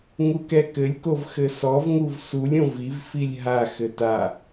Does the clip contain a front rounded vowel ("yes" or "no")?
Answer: no